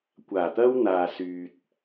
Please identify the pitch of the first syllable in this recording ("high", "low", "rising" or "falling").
low